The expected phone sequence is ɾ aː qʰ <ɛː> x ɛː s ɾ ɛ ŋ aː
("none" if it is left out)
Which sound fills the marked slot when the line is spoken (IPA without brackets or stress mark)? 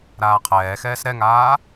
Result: ɛː